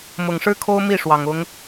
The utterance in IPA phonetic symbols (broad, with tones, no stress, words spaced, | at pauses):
mʊ˨˩ŋʂɻ̩˥kʰo˥ʊ̯ mi˥˩ʂwɑ˨˩ŋ ʊ˧˥ŋ